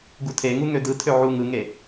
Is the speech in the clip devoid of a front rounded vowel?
no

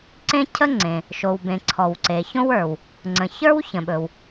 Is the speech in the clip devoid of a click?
no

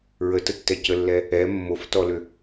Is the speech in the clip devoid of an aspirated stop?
yes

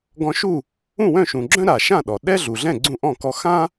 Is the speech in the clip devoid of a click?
no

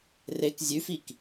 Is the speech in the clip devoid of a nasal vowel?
yes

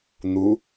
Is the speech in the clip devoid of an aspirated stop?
yes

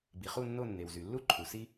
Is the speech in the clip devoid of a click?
no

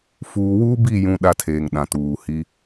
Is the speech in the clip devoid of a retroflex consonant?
yes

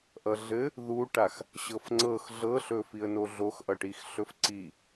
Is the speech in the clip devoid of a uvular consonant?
yes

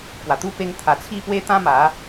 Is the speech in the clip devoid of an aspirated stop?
no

